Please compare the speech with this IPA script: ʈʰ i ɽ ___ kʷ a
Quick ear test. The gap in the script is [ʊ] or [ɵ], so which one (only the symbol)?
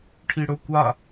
ɵ